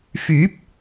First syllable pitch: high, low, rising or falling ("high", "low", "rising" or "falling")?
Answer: rising